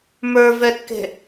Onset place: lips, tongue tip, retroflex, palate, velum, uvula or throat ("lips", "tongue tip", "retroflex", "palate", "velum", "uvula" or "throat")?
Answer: lips